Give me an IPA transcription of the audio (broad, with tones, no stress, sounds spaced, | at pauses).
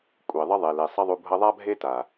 kʷʼ e˨ ðˤ ə˦ ðˤ e˨ l e˨ sˤ ʌ˦ ðˤ u˧ bʱ ʌ˧ ðˤ a˦ bʱ e˦ t a˨